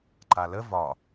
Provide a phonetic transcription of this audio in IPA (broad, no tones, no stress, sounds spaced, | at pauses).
ǃ a l ə v ɒ